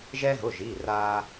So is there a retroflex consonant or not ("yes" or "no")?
no